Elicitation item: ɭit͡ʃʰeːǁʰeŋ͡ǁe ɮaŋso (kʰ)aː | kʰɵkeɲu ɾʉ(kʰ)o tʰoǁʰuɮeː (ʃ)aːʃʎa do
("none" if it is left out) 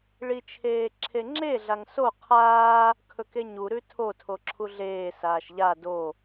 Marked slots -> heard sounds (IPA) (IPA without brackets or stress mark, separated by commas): qʰ, tʰ, s